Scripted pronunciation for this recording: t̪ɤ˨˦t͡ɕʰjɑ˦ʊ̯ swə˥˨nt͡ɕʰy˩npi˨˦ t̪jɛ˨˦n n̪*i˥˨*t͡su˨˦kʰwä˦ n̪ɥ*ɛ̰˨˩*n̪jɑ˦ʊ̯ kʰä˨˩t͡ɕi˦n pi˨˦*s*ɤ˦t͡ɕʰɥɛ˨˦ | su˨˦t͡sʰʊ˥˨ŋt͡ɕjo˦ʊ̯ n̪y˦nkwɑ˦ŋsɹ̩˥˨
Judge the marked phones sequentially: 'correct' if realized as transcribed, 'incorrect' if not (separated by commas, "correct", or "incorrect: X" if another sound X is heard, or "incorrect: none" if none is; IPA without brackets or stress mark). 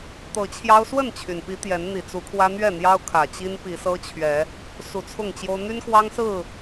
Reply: incorrect: i˨˩, incorrect: ɛ˥˨, correct